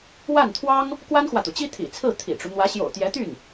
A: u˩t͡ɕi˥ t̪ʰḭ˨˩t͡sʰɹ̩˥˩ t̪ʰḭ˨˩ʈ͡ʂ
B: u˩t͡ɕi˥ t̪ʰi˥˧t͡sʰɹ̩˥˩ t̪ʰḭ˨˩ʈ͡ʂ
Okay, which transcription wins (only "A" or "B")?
A